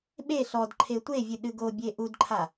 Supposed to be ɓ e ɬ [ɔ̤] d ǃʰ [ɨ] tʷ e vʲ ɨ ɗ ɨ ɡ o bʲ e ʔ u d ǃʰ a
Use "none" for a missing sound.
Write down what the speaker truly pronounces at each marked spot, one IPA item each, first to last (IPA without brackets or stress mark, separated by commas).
ɔ, e